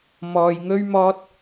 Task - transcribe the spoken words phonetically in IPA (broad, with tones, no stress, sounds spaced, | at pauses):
m ɔː˨ j ŋ ɵ˥ ɥ m ɔː˥ t̚